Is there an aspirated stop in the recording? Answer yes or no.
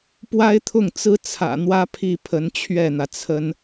yes